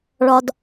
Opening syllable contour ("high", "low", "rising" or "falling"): low